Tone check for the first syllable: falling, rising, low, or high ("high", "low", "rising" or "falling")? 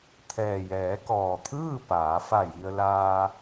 low